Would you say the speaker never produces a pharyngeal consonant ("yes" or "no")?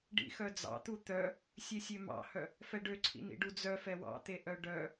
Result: yes